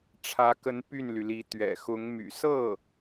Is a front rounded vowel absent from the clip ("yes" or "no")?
no